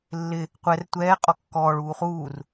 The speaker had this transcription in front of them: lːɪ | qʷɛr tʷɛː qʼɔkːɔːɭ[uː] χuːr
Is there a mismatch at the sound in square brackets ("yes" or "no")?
no